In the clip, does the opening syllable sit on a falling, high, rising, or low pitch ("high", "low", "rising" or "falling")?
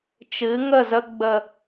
rising